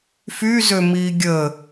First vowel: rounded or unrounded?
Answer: rounded